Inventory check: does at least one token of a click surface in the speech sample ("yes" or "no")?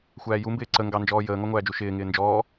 yes